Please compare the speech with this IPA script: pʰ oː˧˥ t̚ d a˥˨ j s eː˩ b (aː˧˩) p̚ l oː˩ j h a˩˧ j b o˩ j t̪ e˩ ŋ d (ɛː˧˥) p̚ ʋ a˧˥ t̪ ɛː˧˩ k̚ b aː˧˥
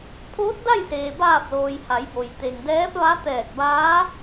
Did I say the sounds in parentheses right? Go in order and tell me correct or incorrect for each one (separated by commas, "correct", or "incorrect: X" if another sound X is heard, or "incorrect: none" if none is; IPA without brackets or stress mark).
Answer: correct, correct